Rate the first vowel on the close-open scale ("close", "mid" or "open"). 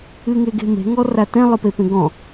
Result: close